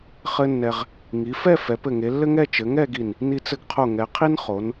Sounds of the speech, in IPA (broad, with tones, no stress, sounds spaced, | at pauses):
χ ɘ˥ nː ɛ˧ ʁ | ŋ i˩˧ f ɛ˥˧ f ɛ˩˧ p ɘ˧˩ ŋ e˩˧ lː ɘ˥ ŋ ɛ˥˧ t͡ʃ ɘ˩˧ ŋ ɛ˥˧ ɡ i˧˩ n | n i˧ t͡s ɘ˧ ɡ qʰ o˧˩ ŋ ɛ˩˧ qʰ i˥ n χ o˩˧ n